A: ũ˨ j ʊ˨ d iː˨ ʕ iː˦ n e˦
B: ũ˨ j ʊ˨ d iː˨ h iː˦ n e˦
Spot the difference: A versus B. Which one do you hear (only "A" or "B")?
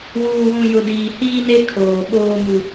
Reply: B